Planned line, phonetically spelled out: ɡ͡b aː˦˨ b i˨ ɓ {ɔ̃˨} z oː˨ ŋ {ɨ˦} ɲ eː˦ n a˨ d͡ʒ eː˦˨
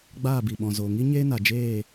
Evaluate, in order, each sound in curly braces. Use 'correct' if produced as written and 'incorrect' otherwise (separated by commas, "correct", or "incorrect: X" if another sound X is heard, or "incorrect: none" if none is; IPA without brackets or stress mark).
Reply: correct, incorrect: i˦